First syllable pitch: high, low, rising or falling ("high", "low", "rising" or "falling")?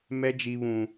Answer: high